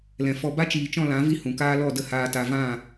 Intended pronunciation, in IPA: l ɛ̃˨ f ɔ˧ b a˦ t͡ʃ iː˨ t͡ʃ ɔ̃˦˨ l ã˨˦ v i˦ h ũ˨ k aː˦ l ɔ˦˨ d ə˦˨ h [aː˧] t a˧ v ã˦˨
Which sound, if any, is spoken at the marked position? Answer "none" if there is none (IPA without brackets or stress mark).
aː˧